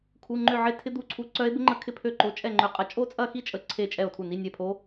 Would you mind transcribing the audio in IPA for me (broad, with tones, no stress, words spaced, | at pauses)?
kʰu˧˥˧ŋ͡ǃʏ˥˧ʕɪ˥˧ tʰɪ˦˥d̪u˧˥˧ǀʰu˧˥˧ ǀœ˦˥e̯bɪ˦˥ŋ͡ǃə˦˥kʰɪ˥˩ pʰø˥˧ǃo˧˥˧t͡ʃʼɛ˥˧ ŋ͡ǃʏ˥˩qʼɐ˥˧ t͡ʃʼo˥˧t͡sʼɐ˥˧xi˥˧ t͡ʃʼə˥˧ǀʰe˥˧t͡ʃʼɛ˥˩o̯tʰu˥˩ ni˧˥˧nʲɛ˥˩pʰo˦˥